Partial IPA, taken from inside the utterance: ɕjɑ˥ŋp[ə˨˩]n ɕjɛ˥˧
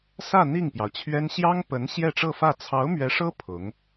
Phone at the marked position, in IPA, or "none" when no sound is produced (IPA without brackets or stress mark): ə˧˥